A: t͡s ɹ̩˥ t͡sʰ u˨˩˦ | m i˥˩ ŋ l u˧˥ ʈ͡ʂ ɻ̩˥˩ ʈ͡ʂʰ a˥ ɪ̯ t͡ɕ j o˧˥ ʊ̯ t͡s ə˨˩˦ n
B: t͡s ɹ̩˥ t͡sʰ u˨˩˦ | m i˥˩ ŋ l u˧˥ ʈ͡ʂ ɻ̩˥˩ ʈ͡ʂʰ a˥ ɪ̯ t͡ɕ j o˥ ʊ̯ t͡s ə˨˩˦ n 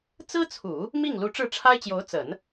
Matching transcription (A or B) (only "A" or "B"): A